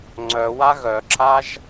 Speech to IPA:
ŋ͡ǀ œ w a ɣ œ ǁ a ʒ

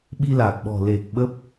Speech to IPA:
ɓ i˧ l aː˨˩ k̚ ɓ ɔ̤˨˩ l e˨˩ k̚ ɓ ə˦˥ p̚

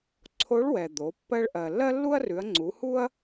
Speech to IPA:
ǀʰ o˧˥ ɭ w ɛ˩ d̪ o˩˧ pː ɜ˧ ɭ ʔ ɜ˩ lː ɜ˥ lː u˥ ɐ̯ r ʉ˩˧ ɐ̯ ŋ͡ǀ u˩˧ h u˥ ɐ̯

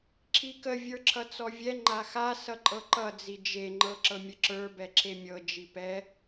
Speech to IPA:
ǁʰ i k ə vʲ ə˞ ǁʰ ʌ t͡s ɔ vʲ ɛ ŋ͡ǃ a x a s ʌ ǃʼ ɤ ǃ ʌ d͡z i d͡ʒ e ŋ͡ǃ ɤ ǁ ɤ mʲ ə ǁ ə˞ b ɛ ǁʰ e mʲ ɤ d͡ʒ i p ɛ

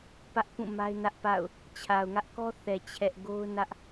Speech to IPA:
p ä˦ ʔ p ũ˦˨ m a˦ ɪ̯ n ä˦ ʔ p a̰˦˨ ʊ̯ | t͡ɕʰ a˨ ʊ̯ ŋ ä˦ ʔ k ɔ˦ θ ɛ˨ t͡ɕʰ ɛ˦ ʔ ɡ o˦ ʊ̯ n ä˦ ʔ

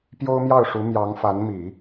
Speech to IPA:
p j o˥ ʊ̯ m j ɑ˥˩ ʊ̯ ʂ u˧˥ m j ɑ˧˥ ŋ f a˧˥ n m i˨˩˦

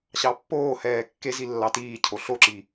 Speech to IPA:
ɕ ɑ pː oː h ɛː kː e z i lː ɑ t iː cʰ o ɬ o ǁ i

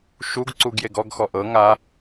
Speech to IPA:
ʃ u ɡ ǀ u ɡ j e ɡ ɔ ɡ x ɔ ʔ ɤ ŋ a

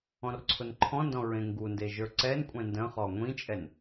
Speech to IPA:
ɔ̃ r ǀʰ ʊ n ǃʰ ɔ̃ n d ɔ̃ ɹ ẽ ŋ ɡ u n d e ʒ ə˞ ǀ ɛ n kʷʼ ɛ̃ n d ə̃ χ ɔ ŋʷ ĩ t͡ʃʼ ɛ n

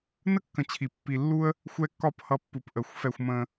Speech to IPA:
n ə˥ kː ə̃˨ t͡ɕʰ i˩ pː i˨ lː u˦ ə̯ | xʷ ɛ˦ kː ɒ˦ p h ʌ˨ pː u˩ p ʔ ə˩ xʷ f ɛ˨ xʷ m ə̃˨

